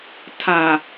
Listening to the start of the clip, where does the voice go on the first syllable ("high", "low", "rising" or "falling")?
low